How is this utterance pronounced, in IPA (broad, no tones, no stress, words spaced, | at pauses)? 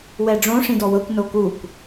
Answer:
wɛɖ͡ʐõ ʂĩdɔwɤkʷ nokukʷ